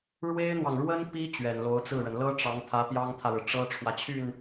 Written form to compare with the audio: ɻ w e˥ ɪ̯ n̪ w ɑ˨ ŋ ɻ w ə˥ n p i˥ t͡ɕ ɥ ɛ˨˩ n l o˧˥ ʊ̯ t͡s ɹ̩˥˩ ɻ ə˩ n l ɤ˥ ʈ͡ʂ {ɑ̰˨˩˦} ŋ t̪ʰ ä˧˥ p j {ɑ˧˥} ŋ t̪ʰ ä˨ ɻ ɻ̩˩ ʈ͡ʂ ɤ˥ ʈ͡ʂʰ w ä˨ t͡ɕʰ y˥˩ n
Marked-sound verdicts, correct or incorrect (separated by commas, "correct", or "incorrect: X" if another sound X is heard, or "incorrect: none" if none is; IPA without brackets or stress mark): incorrect: ɑ˧˥, incorrect: ɑ˥